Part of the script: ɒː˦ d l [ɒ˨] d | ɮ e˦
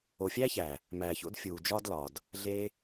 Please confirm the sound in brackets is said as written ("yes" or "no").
yes